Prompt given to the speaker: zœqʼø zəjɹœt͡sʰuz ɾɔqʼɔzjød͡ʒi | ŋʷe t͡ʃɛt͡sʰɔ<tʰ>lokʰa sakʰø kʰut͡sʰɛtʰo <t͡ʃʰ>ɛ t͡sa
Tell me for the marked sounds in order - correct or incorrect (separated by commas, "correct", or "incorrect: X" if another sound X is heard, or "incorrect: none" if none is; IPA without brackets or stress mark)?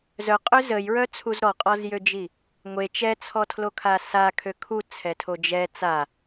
correct, incorrect: d͡ʒ